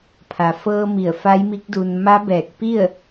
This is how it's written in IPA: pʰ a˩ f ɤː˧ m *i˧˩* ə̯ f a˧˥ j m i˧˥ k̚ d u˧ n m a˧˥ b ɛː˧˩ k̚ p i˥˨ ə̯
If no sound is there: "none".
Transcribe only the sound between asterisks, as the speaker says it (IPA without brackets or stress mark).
i˧˩